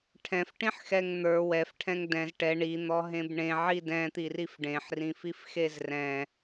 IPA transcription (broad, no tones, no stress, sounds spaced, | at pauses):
ʈʰ ɛ̃ f ʈ ĩ ħ x ɛ ŋ n̪ ə˞ w ɛ f ʈʰ ɛ̃ ŋ d ɛ̃ z ʈ ɛ ɳ i n̪ ɔ ɦ ẽ b ɳ ẽ ʕ i d ɛ̃ t̪ i r i f ɖ ẽ ħ r ĩ f i f x e z r ɛ̃